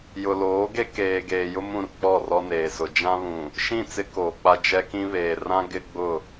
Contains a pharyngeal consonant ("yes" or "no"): no